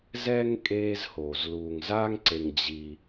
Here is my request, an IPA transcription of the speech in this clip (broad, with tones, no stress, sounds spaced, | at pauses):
z ɛ˥ ŋ kʼ eː˦ z h oː˩ z l uː˨ ŋ z aː˥ ŋ ǀ e˨ ŋ d͡ʑ i˨